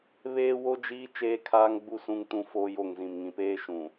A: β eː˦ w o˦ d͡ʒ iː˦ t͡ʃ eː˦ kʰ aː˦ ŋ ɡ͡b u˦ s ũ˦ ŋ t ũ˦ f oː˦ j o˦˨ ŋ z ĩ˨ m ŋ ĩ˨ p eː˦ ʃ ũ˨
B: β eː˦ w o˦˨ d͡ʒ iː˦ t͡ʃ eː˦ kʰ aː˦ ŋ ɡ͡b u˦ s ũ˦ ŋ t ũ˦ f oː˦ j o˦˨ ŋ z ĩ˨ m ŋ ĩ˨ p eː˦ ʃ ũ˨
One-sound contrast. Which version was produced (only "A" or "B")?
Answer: A